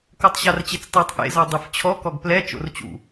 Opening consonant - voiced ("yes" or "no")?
no